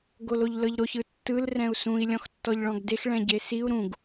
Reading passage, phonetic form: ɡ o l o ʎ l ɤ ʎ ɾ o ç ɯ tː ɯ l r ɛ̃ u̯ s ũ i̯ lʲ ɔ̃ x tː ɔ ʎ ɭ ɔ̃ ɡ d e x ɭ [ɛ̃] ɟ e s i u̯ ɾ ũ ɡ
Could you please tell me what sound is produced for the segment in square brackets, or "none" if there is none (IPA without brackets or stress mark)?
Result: ɛ̃